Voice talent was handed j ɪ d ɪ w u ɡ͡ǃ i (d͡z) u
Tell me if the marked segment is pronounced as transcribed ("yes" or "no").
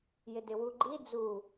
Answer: yes